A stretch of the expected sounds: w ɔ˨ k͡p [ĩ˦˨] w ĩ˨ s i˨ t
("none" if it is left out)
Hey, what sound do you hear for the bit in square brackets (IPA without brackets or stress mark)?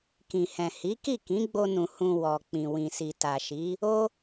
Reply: ĩ˨